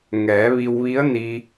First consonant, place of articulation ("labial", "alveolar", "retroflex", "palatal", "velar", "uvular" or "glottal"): velar